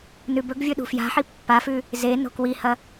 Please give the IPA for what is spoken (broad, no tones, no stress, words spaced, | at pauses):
nʉbɵɡvʲɵ ɗṳfja̤ħi pːafʉ | ze no̤kwihɐ